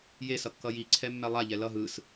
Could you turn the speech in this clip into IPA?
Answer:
j e s ʌ kː ʌ j i ǀʰ ɛ mː ɛ lˠ a ʎ ɛ l ʌ ɦ ɯ s

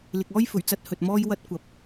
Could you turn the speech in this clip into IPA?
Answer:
l ɪ˨ k̚ ɔː˥ j f ɵ˨˩ ɥ t͡s ɐ˧ t̚ h ɵ˨ t̚ m ɔː˥ j w ɐ˥ t̚ kʷ ɐ˨˥ p̚

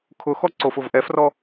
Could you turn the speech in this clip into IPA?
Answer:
kʰ ʊ x ɔ ǀ o f ʊ v ʔ ɛ f r ɔ

